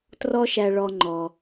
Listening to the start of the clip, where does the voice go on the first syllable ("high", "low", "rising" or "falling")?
high